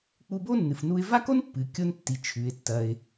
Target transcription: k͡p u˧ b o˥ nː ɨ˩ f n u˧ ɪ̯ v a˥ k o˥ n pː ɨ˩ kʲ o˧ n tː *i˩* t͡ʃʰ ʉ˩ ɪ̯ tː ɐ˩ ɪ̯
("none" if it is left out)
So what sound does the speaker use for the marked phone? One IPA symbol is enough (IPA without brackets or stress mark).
i˩